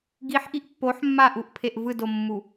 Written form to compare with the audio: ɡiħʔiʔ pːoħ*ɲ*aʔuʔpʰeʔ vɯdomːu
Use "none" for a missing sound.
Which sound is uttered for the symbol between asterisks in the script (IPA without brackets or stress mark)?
mː